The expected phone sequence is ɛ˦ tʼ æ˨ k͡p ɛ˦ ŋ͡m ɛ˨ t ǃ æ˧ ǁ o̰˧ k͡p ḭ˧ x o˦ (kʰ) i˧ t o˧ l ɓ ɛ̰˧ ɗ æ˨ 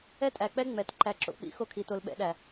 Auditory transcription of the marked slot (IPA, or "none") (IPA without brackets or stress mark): kʰ